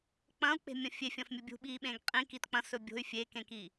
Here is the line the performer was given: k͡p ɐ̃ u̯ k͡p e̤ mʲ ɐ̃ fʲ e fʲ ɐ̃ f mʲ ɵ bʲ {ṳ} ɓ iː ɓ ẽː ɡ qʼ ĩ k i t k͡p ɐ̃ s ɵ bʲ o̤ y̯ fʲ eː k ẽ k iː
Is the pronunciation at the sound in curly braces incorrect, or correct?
correct